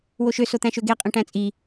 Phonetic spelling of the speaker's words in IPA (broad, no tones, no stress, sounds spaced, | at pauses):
w o ʃ ø s o t̪ æ̃ ʃ ø ɡ e qʼ ẽ ʈ æ̃ t͡sʼ i